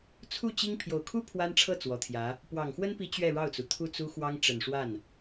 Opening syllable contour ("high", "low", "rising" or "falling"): falling